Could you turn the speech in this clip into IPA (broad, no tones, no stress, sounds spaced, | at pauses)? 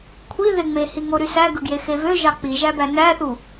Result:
kʷʰ i ð e ŋ͡m e h i ŋ o ɾ y s æ ɡ ɯ ɡ j e x e v ø ʒ ɑ k͡p i ʒ æ b æ n æ θ u